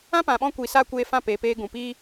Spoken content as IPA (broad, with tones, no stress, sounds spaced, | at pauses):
ã˦ p ã˨ ɓ ɔ̃˧ kʷ i˨ s a˧ kʷ eː˧ f ã˦˨ p eː˨ p eː˧ ɡ ũ˨ p iː˦